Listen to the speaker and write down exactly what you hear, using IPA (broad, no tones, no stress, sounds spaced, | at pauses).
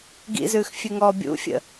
ɡ ḭ z ʉː x fʲ ʉ ŋ ɔː bʲ ṵ fʲ ə̰